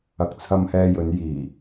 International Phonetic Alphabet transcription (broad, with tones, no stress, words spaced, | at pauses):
ɐ˨k̚t͡sʰɐ˧mhɛː˧jɵ˨˧n jiː˨˩